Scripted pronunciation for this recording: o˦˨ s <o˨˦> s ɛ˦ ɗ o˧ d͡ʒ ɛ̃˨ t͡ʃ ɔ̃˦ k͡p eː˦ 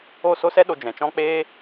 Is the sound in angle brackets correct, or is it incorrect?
incorrect